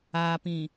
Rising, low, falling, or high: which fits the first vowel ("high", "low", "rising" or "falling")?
low